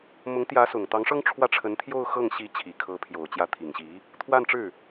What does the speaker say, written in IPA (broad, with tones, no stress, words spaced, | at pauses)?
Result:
mʊ˧˥ŋt̪jä˧˥sʊ˨˩ŋ t̪ɑ˧˥ŋʂɤ˥ŋ ʈ͡ʂʰwä˥˩ʈ͡ʂʰə˧˥nt̪ʰjo˥˧ʊ̯ xɤ˥˩ŋɕi˧˥ t͡ɕʰi˨˩kʰɤ˧˥pʰjo˨˩ʊ̯ t͡ɕjä˧˥t̪ʰi˨˩ŋɕi˧˥ | t̪ʰwa˥˧nʈ͡ʂɻ̩˥˩